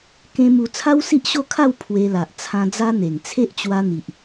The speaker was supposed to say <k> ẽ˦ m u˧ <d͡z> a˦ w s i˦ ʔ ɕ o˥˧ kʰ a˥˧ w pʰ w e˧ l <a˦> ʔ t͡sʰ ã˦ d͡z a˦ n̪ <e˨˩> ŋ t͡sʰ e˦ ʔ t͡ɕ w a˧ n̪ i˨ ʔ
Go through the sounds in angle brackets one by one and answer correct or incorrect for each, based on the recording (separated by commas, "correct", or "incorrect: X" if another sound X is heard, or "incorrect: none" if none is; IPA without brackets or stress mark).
correct, incorrect: t͡sʰ, incorrect: a˨, correct